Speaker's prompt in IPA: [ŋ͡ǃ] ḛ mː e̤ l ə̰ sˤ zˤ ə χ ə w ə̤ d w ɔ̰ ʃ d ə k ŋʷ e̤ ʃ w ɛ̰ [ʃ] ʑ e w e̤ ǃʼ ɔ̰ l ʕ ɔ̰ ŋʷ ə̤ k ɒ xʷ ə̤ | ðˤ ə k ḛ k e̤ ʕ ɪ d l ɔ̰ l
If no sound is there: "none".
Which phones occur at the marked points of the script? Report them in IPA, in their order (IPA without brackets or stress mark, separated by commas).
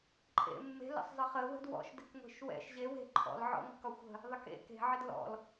ǃʼ, ʃ